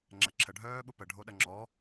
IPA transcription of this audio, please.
ŋ͡ǁɐǁʰə ɖʱœːɓʊpə ɖʱoɗɐŋ͡ǁɔ

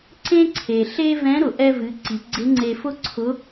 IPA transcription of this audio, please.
ǀẽ˥ǀʰe˩ ɬe˥ vɛ̃˧˥ ɾʊ˩ʔɛ˧vɨ˩˧ ǀi˩˧ɡ͡ǀɪ˧˥ŋ͡ǀe˧ fʊ˥ǀʰʊ˧˥

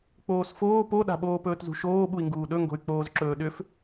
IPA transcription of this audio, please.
k͡poːsfoː poɗa̤ ɓoːpɵːtzṳʃoː ɓui̯ŋɡuːɗɵŋɡo̤y̯ k͡poːzǁɵːɗʏf

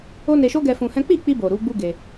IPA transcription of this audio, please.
o˦ne˧ʃo˦ɡɛ˧ fũ˧hɛ̃˦ k͡pi˦˨k͡pi˧bo˨ ɾu˨˦ɡ͡bu˦ɡe˧

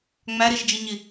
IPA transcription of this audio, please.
ŋ͡mæɾiʃd͡ʒiɲi

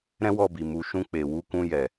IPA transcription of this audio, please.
ɾɛ̃˦wɔ˦˨bi˨ mu˨ ʃũ˧k͡pe˨wu˨˦kũ˧ jɛ˨

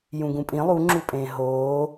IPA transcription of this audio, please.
jũɡũpʼĩ lˠu ŋ͡ǁupʼẽːɦoː

